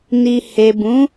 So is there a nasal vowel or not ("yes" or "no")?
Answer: yes